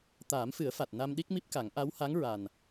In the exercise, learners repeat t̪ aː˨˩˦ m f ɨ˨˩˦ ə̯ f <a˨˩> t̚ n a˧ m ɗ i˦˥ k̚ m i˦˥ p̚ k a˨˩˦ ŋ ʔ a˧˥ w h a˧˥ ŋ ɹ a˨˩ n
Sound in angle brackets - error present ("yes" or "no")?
no